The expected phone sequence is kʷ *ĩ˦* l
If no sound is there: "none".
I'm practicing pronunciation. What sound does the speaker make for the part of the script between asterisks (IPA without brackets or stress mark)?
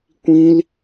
ĩ˦